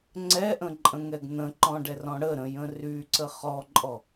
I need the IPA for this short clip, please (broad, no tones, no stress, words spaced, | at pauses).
ŋ͡ǀɛʔə̃ǃʼə̃ŋɛɡ n̪ə̃ǃɔ̃ɖɛrɔ̃ ɽəɾə̃jə̃ ryǀə χɔǃʼɔ